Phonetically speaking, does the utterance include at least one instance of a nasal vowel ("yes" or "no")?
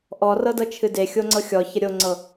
no